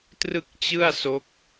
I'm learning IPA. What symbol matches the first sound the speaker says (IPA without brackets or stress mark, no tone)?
t